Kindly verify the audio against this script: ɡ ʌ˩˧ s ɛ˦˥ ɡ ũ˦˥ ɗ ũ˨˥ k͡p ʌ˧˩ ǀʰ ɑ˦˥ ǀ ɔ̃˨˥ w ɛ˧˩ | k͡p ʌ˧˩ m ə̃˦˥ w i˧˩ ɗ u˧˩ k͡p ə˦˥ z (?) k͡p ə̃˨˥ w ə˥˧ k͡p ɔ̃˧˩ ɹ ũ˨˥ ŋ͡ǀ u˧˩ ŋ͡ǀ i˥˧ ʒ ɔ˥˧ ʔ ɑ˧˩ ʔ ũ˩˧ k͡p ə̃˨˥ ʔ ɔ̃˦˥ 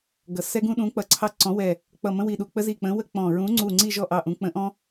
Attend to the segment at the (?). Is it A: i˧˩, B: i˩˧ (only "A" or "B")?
A